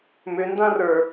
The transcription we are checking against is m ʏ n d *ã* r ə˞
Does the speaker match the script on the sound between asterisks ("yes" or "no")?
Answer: yes